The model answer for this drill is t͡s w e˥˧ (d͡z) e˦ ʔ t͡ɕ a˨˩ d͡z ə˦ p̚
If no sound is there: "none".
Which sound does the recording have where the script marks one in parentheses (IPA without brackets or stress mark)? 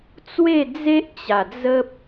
d͡z